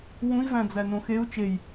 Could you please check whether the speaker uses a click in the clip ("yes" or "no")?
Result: no